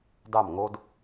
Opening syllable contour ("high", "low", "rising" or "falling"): falling